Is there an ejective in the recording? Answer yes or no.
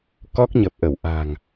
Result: no